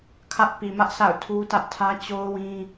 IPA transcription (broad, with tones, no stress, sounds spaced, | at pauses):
kʰ ä˦ ʔ p i˨ m ä˦ ʔ sʰ a̰˦˨ ʊ̯ tʰ u˦ t ä˦ ʔ tʰ ä˦ t͡ɕ o˦ ʊ̯ w ĩ˦